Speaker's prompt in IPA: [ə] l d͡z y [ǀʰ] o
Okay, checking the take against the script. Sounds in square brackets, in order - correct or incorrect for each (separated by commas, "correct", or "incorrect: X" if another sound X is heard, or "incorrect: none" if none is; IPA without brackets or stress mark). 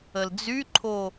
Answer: correct, incorrect: ǃʰ